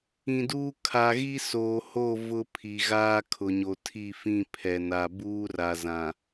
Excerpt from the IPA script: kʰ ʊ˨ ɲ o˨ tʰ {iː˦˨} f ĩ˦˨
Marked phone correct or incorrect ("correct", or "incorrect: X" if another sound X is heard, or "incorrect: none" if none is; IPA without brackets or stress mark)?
incorrect: i˦˨